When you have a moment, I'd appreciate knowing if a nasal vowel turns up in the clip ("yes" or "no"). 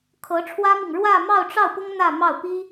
no